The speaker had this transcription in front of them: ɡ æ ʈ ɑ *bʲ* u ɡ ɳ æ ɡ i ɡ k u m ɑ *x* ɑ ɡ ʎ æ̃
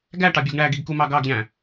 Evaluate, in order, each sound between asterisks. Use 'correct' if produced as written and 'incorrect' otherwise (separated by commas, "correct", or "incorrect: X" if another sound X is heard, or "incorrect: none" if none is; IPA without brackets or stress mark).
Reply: correct, incorrect: ɡ